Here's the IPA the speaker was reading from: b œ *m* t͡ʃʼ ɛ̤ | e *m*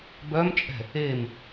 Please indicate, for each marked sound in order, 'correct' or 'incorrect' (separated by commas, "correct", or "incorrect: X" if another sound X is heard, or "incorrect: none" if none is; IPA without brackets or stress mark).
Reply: correct, correct